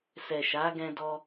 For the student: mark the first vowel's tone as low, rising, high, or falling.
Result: low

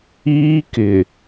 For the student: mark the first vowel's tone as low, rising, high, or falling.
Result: high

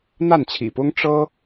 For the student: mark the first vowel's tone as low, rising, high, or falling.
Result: falling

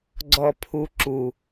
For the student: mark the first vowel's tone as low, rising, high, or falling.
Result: low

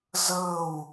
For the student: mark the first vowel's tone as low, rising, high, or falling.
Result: falling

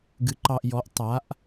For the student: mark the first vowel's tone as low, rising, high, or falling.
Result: rising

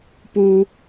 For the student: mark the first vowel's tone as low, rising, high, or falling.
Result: high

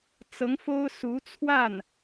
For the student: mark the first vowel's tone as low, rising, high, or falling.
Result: rising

